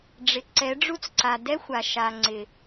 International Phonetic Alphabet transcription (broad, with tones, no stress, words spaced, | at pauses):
ɖ͡ʐɪ˨ǀɛ˨˦ ɖ͡ʐu˦t͡sǀa˨ dɛ˦xʷa˨ʃa˨ ŋ͡ǀɪ˨